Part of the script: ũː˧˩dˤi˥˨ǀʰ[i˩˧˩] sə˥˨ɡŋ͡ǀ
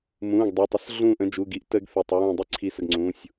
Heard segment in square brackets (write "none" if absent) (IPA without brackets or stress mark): i˧˩